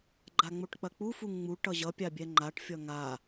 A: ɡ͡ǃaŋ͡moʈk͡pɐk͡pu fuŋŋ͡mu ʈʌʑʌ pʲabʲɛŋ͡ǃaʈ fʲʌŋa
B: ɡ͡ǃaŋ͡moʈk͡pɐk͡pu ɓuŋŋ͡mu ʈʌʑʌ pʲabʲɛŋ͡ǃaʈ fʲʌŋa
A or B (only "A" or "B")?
A